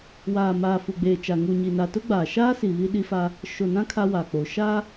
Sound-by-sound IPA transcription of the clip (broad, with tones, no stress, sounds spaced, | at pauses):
w aː˨ m aː˨ f u˨ ɡ͡b eː˨ t͡ʃ a˨ ŋ u˨ ɲ i˨ n a˨ t ʊ˦ ɡ͡b aː˨ ʃ aː˦ s i˨ β i˦ ɗ i˦ f a˦ | ʃ o˨ n ã˦ kʰ a˦ w a˨ k͡p o˨ ʃ a˦